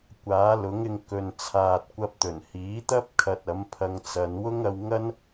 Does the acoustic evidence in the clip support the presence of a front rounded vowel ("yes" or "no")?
no